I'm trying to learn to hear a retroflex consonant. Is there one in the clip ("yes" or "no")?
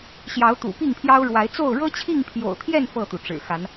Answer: yes